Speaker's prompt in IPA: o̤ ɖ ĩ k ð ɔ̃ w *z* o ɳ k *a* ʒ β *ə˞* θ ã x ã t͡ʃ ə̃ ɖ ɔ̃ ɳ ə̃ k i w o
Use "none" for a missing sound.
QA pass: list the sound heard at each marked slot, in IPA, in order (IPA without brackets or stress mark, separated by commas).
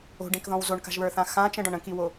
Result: z, a̤, ə˞